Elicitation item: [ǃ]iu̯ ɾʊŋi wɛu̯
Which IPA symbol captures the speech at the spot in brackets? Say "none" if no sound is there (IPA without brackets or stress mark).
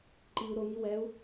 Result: ǃ